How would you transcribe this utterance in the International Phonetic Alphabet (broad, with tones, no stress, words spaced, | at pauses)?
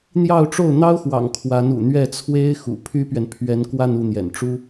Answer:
n̪jɑ˥˧ʊ̯ʈ͡ʂo˥˩ʊ̯n̪ɑ˥ʊ̯xwɑ̰˨˩ŋ kʰwa˧˥nṵ˨˩ n̪ɥɛ˥˩t͡sʰwe˥ɪ̯ xṵ˨˩ pʰy˥pɥɛ˨n pʰɥɛ˧˥nkwa˥˧n u˥˩n̪jɛ̰˨˩n ʈ͡ʂu˥